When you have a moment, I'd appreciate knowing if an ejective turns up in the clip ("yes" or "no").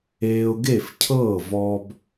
no